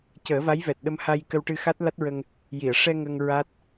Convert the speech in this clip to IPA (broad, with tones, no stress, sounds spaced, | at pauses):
c əː˨˩˦ v a˧˥ j v ɛ˨˩ t̚ ɗ ə˧ m h a˧ j k ə˧ w ʈ ɨ˧ x a˦˥ t̚ l a˦˥ t̚ ɹ ə˧ ŋ | j i˨˩˨ ə̯ ʂ ɛ˧ ŋ ə˧ ŋ ɹ a˦˥ t̚